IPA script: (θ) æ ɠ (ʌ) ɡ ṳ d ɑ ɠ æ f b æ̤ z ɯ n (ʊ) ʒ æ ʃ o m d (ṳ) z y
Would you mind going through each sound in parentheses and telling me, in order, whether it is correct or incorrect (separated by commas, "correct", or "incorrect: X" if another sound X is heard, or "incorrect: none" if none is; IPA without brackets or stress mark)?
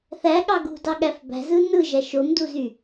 correct, incorrect: ɑ, incorrect: ɯ, incorrect: u